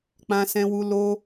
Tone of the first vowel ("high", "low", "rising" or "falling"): high